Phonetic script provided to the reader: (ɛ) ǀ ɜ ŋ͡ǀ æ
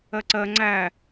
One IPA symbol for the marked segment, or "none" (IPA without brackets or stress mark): ɜ